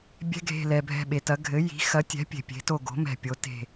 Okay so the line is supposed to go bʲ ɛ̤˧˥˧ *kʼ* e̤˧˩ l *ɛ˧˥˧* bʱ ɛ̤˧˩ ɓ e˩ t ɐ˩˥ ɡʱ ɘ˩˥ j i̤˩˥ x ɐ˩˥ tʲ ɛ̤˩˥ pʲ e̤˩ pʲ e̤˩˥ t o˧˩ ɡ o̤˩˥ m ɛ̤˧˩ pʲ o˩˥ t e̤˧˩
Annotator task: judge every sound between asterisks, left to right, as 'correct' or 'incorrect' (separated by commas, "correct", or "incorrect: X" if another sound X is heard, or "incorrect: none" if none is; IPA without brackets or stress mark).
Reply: incorrect: ɡʱ, incorrect: ɛ˩